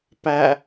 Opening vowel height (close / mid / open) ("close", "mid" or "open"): open